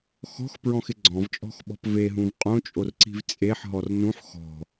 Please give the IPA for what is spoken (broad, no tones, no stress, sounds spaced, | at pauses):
x ɔ̤ x p ɹ ɔ̃ x ɪ ɡ͡ǀ ɔ̃ v t͡ʃʼ ɔ̤ x ɓ ɔ̤ p v e ɦ ũ v qʼ õ t͡ʃʼ o r ǀ i̤ v t͡sʼ e ħ ɦ ɔ r n ũ ħ x ɔ̤